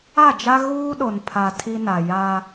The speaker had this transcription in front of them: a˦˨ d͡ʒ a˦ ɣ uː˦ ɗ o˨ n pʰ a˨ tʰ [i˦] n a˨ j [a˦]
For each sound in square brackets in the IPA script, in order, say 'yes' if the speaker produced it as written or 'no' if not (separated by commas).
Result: yes, yes